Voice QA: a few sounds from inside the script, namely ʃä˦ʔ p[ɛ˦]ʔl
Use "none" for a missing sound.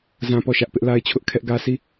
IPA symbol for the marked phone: ɪ˦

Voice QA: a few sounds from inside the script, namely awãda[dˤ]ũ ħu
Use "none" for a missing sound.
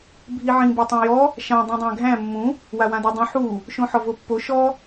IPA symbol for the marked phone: dˤ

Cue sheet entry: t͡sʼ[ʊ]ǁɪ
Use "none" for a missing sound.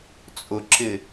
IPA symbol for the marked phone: ʊ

